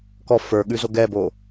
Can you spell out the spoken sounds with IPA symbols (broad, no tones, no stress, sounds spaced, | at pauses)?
k ɔ f ə˞ ɠ ʉ z o ɡ ɛ b oː